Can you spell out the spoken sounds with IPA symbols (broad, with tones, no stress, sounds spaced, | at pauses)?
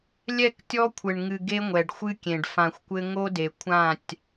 lʲ ɛ˦˨ k tʲ ɔ˦ kʷʰ ɘ˨ ɳ ŋ ɨ˨ ɡ e˦ ŋʷ ɛ˨ ɖ xʷ ɨ˦ kʲ ẽ˨ ɖ f ã˨ xʷ kʷ ɘ˦ ŋ o˦ d e˨ kʷʰ ã˦˨ tʲ